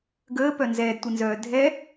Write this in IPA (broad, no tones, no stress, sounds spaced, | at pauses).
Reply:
ɡ əː p œ n z ɛː d tʷ e n z œː dʱ ɛ